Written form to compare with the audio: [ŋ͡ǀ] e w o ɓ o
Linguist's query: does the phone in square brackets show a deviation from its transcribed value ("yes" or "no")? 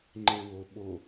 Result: yes